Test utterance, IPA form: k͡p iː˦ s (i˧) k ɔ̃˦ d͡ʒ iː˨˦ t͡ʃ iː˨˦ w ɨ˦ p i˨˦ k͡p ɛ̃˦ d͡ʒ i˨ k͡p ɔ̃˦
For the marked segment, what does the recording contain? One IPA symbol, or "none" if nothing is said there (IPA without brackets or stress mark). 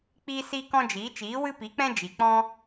i˦